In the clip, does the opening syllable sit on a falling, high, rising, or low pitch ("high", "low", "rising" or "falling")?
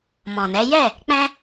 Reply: low